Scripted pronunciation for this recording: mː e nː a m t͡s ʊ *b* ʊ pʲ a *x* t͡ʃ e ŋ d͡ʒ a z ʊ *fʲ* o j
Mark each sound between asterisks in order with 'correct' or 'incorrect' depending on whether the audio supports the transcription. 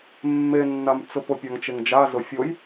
incorrect: p, incorrect: ŋ, correct

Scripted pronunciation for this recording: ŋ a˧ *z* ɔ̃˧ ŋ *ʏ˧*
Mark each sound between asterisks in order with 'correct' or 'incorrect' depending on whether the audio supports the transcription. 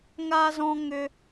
correct, correct

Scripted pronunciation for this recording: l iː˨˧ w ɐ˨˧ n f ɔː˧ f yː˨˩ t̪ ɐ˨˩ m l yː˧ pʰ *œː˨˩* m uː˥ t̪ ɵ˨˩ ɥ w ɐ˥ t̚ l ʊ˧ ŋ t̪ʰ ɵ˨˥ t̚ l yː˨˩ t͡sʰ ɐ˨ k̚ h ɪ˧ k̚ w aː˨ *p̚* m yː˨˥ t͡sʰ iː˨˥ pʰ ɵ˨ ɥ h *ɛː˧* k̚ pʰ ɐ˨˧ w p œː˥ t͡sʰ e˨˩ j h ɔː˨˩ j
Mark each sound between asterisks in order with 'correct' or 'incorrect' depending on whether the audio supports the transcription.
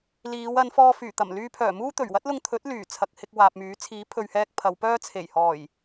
correct, correct, correct

